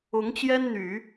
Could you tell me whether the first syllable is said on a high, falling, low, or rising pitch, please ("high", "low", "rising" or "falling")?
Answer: rising